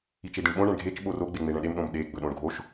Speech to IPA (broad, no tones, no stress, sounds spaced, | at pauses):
i t͡ʃ e d ĩ ɳ ɓ õ ɳ ɛ̃ ɳ ɡʱ e t͡ʃ ɓ o r o ɡ͡b e ŋ͡m e ɳ ɛ̃ ɗ e m ɗ õ m ɗ e ɡ͡b ɵ ɗ õ ɳ ɡʱ o ʃ